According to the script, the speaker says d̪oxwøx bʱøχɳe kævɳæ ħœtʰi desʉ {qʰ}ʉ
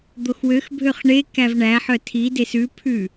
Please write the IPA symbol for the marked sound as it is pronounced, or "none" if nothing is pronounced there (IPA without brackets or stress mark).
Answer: pʰ